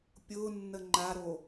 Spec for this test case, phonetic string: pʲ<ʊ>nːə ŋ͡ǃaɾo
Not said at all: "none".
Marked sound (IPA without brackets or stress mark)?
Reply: ʊ